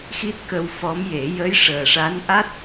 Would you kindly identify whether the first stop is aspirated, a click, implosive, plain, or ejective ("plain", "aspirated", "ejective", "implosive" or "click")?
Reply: plain